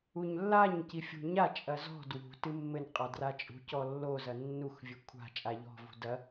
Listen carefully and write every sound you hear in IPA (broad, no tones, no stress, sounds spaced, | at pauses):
u ɲ lː a ɲ c i fʲ ṳ ɲ a t͡ʃʼ ɐ z ɔ̤ d w ṳ t ɨ mː ɘ n qʼ a d r a t͡ʃʼ ṳ c ɔ lː o z ɐ nː u x vʲ ɘ kʷʰ a̤ t͡ʃʼ a ʎ ɔ̤ v ṳ d ɐ